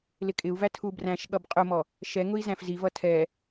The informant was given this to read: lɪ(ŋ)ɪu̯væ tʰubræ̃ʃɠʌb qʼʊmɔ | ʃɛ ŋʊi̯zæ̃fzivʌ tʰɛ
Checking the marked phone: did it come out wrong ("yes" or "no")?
yes